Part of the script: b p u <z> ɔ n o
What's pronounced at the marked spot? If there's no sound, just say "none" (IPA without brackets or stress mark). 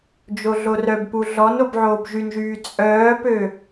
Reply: ɮ